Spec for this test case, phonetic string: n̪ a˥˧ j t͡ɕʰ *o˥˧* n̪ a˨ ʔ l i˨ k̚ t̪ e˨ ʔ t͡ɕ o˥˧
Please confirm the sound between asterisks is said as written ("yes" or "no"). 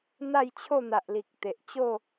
yes